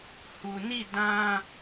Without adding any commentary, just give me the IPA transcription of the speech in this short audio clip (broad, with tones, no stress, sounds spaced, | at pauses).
h u˨ n i˦˨ d ã˦